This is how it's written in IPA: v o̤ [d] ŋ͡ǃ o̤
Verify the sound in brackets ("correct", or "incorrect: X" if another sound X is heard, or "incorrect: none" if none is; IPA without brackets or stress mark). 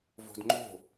correct